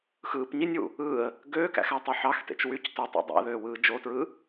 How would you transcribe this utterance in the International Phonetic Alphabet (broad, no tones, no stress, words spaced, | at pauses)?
xɯːpɲinʲwṵ | ɯːə̯ | ɡøːkæ̰xætˤy ħɑxtḛt͡ʃ wyc totˤo̰ dˤæ̰ðøːwɯː d͡ʒotɹɯː